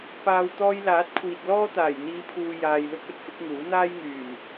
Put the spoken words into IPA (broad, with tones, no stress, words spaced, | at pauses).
paː˨w t̪ɔː˧jlaː˨˥t̚ kʷʰiː˨t̚ lɔː˥t̪aː˨˩j n̪iː˨˧pʰuː˨ jaː˨jlʊ˥k̚ɵ˧t̚ fɪ˨˥k̚ŋuː˨˥ n̪aː˥jŋyː˨˩m